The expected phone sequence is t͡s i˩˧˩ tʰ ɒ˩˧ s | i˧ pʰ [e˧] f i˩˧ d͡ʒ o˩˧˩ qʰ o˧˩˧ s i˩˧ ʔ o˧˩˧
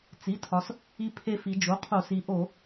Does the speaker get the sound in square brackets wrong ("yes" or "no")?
no